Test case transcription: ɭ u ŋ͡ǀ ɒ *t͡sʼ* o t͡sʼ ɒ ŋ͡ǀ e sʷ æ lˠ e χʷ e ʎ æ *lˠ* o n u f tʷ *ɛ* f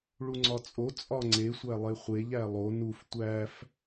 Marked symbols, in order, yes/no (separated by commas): yes, yes, no